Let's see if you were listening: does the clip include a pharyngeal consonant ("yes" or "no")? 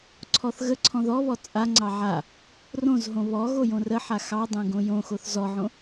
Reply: yes